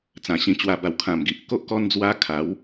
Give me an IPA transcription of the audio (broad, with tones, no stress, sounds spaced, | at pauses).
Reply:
t͡s ã˨˩ ɕ ĩ˧ t͡ɕ w a˧ b a˨˩ w kʰ ã˨˩ m ɡ i˨ ʔ k o˦ ʔ k ɔ˦ n d͡z w a˦ kʰ a˨˦ w